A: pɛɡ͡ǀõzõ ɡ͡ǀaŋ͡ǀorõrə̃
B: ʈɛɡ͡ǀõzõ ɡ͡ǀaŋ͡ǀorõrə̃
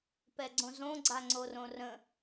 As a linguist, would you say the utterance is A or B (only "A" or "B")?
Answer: A